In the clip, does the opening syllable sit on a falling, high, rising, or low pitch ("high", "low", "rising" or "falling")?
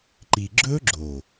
low